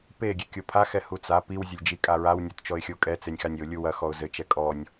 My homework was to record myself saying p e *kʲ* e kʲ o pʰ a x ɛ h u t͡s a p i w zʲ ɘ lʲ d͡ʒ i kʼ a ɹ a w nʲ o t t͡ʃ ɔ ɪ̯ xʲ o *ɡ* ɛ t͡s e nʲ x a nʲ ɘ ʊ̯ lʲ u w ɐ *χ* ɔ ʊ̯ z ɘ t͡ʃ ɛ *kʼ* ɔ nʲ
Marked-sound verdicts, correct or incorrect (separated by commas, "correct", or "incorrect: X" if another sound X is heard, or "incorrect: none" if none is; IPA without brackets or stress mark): incorrect: ɡʲ, incorrect: kʼ, incorrect: x, correct